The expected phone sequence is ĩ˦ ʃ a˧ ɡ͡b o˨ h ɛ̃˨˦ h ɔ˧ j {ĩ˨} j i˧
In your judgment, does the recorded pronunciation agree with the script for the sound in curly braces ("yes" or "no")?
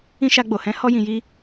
yes